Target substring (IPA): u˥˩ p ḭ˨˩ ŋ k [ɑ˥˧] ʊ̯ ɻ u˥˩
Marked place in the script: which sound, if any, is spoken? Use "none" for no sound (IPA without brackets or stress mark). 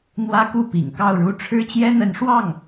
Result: ɑ˥˧